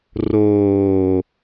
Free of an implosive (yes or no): yes